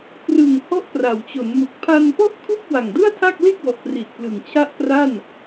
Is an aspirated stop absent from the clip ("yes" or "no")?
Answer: no